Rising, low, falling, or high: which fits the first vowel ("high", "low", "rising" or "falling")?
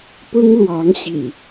high